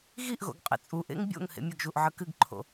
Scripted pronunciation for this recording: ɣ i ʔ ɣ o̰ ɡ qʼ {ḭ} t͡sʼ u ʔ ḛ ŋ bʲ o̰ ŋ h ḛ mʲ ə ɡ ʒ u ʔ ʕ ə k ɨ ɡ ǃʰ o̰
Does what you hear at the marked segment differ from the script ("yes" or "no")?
yes